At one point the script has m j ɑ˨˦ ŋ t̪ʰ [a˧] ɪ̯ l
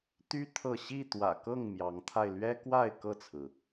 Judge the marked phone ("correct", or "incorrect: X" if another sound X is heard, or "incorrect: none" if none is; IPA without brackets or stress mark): correct